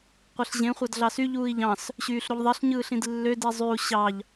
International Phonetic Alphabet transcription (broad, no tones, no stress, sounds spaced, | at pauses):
qʷ e ɬ ʑ ẽ χʷ ɑ d ɮ ɑ s y ʎ uː i̯ ʎ ɑ̃ s | ɕ yː ɬ ɾ u ʎ ðˤ i ɬ ɲ ɯː ɬ ĩ d lː ø d i zˤ y u̯ ɕ ɑ ʎ